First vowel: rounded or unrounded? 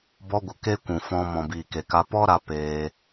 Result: rounded